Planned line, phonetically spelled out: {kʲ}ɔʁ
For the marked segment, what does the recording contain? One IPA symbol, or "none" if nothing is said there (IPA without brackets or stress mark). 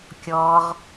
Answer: kʲ